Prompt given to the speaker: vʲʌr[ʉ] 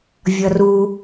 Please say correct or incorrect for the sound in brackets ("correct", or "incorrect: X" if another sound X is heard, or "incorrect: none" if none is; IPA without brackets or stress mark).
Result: incorrect: u